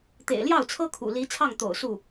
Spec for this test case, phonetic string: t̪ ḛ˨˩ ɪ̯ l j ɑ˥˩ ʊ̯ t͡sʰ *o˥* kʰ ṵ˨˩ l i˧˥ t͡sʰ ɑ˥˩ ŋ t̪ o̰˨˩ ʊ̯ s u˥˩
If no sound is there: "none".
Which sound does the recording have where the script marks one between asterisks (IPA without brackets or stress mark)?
ɤ˥